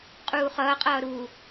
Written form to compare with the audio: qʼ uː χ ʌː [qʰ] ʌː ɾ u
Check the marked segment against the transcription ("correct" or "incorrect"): incorrect